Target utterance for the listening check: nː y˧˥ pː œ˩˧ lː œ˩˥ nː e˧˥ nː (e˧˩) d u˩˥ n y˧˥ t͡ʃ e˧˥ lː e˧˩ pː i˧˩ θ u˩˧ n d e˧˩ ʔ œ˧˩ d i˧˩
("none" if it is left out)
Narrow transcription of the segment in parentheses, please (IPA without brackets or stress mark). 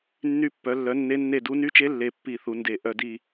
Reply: e˧˩